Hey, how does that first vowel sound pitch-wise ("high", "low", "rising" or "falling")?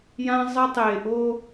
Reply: high